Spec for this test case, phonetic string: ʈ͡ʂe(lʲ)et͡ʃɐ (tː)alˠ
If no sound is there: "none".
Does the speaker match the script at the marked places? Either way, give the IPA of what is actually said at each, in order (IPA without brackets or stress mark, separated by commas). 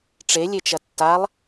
lʲ, tː